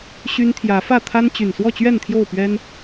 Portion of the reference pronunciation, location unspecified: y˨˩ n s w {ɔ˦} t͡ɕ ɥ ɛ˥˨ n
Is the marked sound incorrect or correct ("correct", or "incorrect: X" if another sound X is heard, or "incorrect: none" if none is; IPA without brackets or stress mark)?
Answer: incorrect: ɔ˥˨